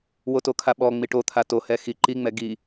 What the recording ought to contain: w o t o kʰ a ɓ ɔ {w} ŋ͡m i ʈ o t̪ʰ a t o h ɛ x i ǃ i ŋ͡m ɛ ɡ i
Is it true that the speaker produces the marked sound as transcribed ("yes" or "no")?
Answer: no